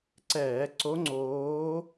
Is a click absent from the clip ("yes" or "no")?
no